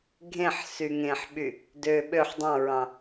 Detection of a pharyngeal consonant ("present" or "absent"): present